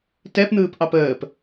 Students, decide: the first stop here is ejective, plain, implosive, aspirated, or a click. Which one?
plain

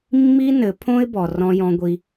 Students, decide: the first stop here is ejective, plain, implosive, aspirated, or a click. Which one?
aspirated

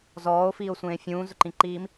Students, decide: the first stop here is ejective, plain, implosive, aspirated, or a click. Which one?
click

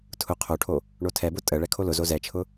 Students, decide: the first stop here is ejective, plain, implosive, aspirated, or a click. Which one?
aspirated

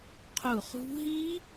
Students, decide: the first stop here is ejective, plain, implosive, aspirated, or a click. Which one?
aspirated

